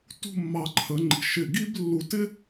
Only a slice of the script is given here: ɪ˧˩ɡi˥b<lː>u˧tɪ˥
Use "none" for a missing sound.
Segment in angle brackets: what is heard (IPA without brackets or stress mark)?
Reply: lː